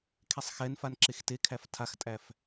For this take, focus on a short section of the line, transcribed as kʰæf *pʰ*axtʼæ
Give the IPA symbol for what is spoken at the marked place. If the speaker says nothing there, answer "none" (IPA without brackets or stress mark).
tʰ